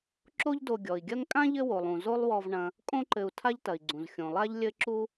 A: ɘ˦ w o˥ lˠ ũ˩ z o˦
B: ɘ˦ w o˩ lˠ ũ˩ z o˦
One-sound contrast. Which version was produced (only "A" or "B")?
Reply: B